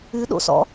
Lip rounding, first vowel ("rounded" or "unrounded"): rounded